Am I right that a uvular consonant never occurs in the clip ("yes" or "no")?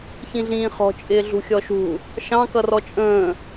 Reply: no